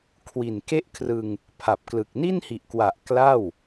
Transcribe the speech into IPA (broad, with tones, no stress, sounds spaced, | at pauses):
kʰ w i˨˩ n k e˥˩ ʔ kʰ r ɯ˧ ŋ | pʰ a˨˩ p̚ k l ɯ˨˩ k̚ n i˥˩ n h i˨˩ ʔ k w a˨˩ ʔ k l a˥˩ w